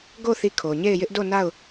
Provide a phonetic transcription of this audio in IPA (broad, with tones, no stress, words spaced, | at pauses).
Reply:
ɡo˦˨ θi˦˨kʰo˨ ɲe˦˨ɪ̯jɪ˦ʔdo˦˨ na˦˨ʊ̯